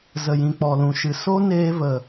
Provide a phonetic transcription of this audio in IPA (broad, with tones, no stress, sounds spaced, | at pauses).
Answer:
z ə˨ j ĩ˨ k͡p ɔ˨ l ũ˨ ʃ ɨ˨ s o˦ n eː˧ v ə˨